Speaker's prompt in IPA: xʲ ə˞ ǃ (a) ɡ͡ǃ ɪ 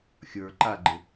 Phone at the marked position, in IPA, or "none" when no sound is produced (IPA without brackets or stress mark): a